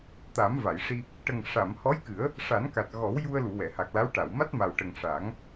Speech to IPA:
t̪ a˨˩˦ m v a˨˩˨ j ʂ i˧ | ʈ ə˨˩ ŋ ʂ a˨˩˨ m h ɔ˧˥ j k ɨ˨˩˦ ə̯ | ʂ a˨˩˦ n k a˨˩ t̚ ɣ ɔ˨˩˦ w j u˧ ə̯ l u˨˩˨ w ɛ˨˩˨ h a˨˩ k̚ l a˧˥ w ʈ a˨˩˨ w m a˦˥ t̚ m a˨˩ w ʈ ə˨˩ ŋ ʂ a˨˩˦ ŋ

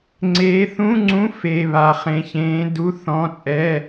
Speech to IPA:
ŋ͡ǀ eː˧˥ θ ũ˧˥˧ ŋ͡ǀ ũ˧˥ f e˧˥˧ β a˧˥ χ ẽ˧˥˧ ç ẽː˧˥ d u˧˥˧ θ ɔ̃˧˥˧ t͡sʼ ɛ˧˥˧

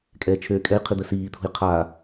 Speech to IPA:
kʼ ɛː t͡ʃʰ øː kʼ ɛ j qʰ i d̪ ə s iː t̪ʰ ṳ j qʰ a

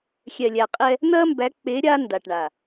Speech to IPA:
xʲ ɛ˨ lʲ æ˨ qʼ ɛ˧ | n̪ ɐ˦ m b æ˨˦ k͡p e˨˦ ɾʲ a˦ n d a˨ ʈ ɳ a˨

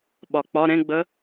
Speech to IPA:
ɓ ɒ k͡p ɒ ɾ ẽ ɡ͡b ə

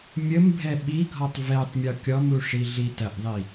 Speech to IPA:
mʲ ə m bʱ ɛ ɓ i ɡʱ ɔ tˤ v ɛ tˤ mʲ ɔ kʲ ɔ m u ʂ i ɮ i t ɐ ʔ ðˤ i

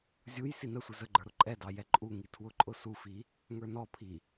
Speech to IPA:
zʲ u j s i n ə sʷ ɪ z ə ɡ͡ǃ ə˞ ɾ ʊ ǃʼ ɛ d ɑ j ɛ ǃʼ u ŋ i tʰ w ʊ ǃʼ ʊ s u f i | ŋ ə˞ n ɔ pʰ i

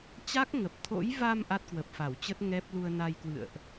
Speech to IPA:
t͡ɕ a˦˥ k̚ ŋ ə˨˩ p̚ t̪ʰ o̰˧˥ j v a˧ m ʔ a˦˥ t̚ k w ə˨˩ p̚ f a˧˩ w t͡ɕ ə˦˥ t̚ ŋ ɛ˦˥ p̚ l u˧ ə̯ n a˧ j k w ɨ̰˧˨ ə̯ ʔ

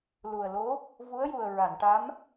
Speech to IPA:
l u˨˩ ə̯ l o˧˥ | v u˧˥ ə̯ j u˨˩ ə̯ ɹ a˨˩˨ n ʈ a˧˥ m

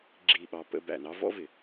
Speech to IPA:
ɡ͡ǁ i˦˨ ɓ ɑ˦ p ə̰˦ b æ̰˨ n ɑ˦ v ɔ̰˦ v ɪ˨

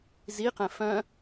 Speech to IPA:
z i q ɛ̃ f œ̃

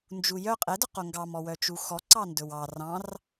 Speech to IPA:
n d͡ʒ u j œ qʼ ɛ d œ q o ŋ ɡ ɑ m ɔ w œ t͡ʃ u x ɔ ǀ ɑ n d ɵ w ɑ r ɑ̃ r

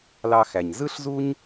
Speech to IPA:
l ɑ˧ x æ˩ ɲ z ɯ˥ ɬ z u˥ ɲ

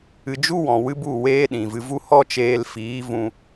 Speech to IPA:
ɨ˧ d͡ʒ u˦ w ɔ̃˨ w ɨ˦ b u˦˨ w eː˦ ɗ ĩ˨ v ɨ˧ v u˦ h ɔ˦ t͡ʃ eː˧ l f iː˨˦ v ũ˧

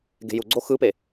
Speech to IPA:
ɡ e̤ j u ɡ͡ǀ o x ɯ p e

